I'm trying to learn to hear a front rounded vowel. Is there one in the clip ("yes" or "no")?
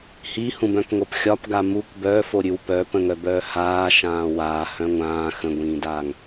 yes